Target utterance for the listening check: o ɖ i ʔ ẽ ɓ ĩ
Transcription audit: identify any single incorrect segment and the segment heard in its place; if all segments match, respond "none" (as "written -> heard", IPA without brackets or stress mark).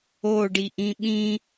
ẽ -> ĩ